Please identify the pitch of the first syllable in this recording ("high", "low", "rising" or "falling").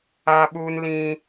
high